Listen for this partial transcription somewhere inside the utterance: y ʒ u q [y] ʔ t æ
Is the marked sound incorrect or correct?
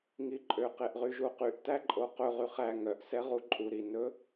correct